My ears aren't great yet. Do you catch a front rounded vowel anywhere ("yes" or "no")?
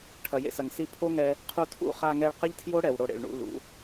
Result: no